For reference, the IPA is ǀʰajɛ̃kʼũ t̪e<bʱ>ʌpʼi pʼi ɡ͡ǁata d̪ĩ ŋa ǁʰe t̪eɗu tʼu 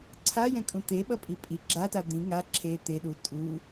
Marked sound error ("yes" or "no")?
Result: yes